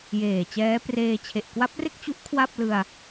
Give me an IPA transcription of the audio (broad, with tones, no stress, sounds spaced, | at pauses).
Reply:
j eː˨˩ t͡ɕ ɛː˦˥ p r eː˧ t͡ɕʰ e˨˩ ʔ k w a˦˥ p̚ r e˥˩ k̚ t͡ɕ u˦˥ ʔ kʰ w a˥˩ p̚ l ɯ˧ a̯